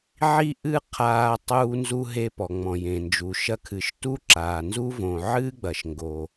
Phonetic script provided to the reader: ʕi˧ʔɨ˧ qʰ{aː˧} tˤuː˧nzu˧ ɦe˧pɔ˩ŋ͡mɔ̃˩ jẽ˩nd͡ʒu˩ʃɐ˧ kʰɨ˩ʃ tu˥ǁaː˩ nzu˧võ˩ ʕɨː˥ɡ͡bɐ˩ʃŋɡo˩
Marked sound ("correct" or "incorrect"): correct